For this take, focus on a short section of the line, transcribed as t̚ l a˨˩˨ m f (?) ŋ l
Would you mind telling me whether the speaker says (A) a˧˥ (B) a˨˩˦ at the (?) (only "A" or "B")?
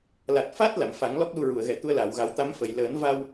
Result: B